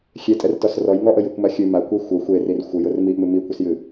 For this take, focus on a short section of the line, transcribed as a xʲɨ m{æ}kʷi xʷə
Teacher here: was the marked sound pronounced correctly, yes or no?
no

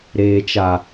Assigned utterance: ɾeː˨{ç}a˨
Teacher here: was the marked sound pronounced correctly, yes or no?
no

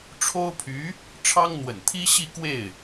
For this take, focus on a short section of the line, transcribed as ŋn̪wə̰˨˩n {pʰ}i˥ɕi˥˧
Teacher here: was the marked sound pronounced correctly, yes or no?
no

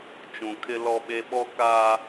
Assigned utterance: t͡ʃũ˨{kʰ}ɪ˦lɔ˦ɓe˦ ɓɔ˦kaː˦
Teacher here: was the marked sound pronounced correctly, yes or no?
yes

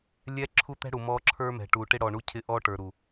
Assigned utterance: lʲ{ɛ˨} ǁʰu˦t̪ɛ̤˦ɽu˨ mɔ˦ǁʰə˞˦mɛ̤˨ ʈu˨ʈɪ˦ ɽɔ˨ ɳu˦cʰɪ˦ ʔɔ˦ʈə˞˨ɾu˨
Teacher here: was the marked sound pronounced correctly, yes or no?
no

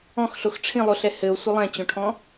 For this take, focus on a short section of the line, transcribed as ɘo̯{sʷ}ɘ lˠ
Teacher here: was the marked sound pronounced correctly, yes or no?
yes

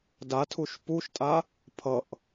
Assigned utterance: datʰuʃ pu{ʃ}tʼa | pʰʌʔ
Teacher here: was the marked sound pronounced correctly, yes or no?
yes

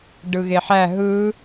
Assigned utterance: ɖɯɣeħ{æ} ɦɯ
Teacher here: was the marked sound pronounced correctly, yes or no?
yes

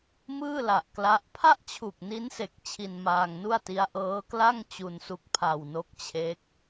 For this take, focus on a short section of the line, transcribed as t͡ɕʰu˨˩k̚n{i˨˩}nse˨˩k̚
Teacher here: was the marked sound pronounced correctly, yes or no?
no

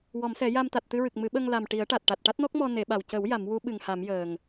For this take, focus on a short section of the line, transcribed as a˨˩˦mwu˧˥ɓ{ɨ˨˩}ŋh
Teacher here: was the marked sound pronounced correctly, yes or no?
yes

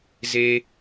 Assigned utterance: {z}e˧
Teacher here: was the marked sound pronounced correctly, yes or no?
yes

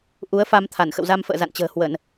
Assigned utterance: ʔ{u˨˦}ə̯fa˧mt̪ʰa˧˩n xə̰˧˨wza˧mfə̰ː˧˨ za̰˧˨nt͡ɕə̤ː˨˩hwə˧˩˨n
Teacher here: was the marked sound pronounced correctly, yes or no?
yes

